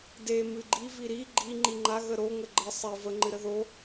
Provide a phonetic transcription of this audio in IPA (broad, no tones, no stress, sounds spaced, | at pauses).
d e m ɨ ɡ͡ǃ i v i ɾ i ɡ͡ǃ i ŋ͡ǃ i ŋ͡ǃ a ɣ ə ɾ o ŋ ə ɡ͡ǃ ə sˤ e v ə ŋ͡ǃ ɨ ɾ ə ð o